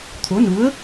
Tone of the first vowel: rising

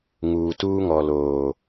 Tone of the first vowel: low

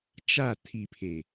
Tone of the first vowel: falling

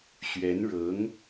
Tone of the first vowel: rising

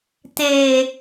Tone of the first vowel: low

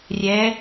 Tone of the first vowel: rising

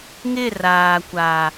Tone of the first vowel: falling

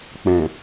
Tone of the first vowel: low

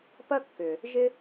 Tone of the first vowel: high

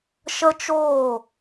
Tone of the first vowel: high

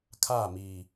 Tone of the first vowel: falling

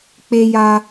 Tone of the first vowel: high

